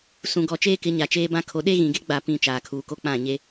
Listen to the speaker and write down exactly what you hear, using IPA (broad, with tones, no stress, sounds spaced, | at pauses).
s ũ˨ ɡ ɔ˨ t͡ʃ eː˦ k ɪ˨˦ ɲ a˨ t͡ʃ eː˦ b ã˦ kʰ o˨ ɗ e˦ ɣ ĩ˨ ɡ e˦ ɡ͡b a˦˨ p ĩ˦˨ t͡ʃ aː˨ kʰ uː˨ k o˦ k͡p ã˦˨ ɲ e˦